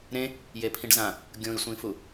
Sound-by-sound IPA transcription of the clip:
ɾ ẽ | j e pʰ ĩ ɖ z ã | ɡʲ õ i̯ sʷ ĩ f u

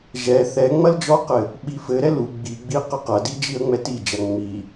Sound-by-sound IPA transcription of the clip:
ʒ ɛ θ ɛ ŋ͡m ɐ l d͡ʒ ɔ q ɘ | ɓ i f ɘ ɾ ɛ l u ɡ͡b i ɡ͡b i q ɘ q ɐ d i d͡ʒ i ə̯ ŋ͡m ɛ t i d͡ʒ ɐ ŋ͡m i

